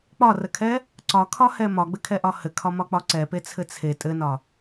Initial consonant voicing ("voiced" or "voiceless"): voiceless